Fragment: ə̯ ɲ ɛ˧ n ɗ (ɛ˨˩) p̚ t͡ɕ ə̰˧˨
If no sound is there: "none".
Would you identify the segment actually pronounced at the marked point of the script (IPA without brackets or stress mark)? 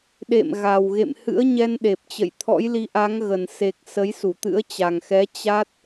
e˨˩